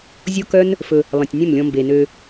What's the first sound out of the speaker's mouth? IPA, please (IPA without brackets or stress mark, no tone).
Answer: zʲ